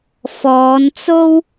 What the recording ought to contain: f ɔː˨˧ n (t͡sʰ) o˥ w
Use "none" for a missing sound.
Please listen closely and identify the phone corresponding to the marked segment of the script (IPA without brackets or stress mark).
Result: t͡s